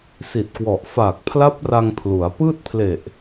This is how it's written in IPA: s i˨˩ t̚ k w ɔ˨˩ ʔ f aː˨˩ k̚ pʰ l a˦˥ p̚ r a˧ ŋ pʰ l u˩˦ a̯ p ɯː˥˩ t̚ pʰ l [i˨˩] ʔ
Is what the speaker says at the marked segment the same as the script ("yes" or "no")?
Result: no